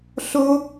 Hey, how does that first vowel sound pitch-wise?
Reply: high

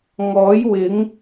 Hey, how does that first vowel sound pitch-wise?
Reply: rising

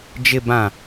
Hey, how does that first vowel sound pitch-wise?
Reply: low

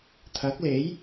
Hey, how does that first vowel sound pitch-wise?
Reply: rising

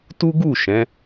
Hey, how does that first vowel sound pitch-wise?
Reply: high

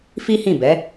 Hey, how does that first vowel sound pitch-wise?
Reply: high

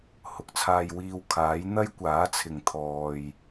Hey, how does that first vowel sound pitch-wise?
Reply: rising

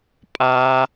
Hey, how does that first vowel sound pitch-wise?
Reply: high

